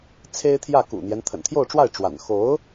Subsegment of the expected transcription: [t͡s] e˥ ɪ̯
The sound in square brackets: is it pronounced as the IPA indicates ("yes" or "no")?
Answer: no